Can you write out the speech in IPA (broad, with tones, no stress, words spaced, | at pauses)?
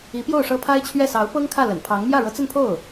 i˧˥pjo˥˩ʊ̯ ʂɤ˥pʰa˥ɪ̯t͡ɕʰɥɛ˥˩ sɑ˧˥ʊ̯pɤ˥ŋkʰä˥˩ lə̰˨˩npʰɑ˧˥ŋ mjä˥˩ɻɤ˧˥t͡sə˥˧npʰo˥˩ʊ̯